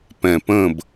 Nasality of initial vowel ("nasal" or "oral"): nasal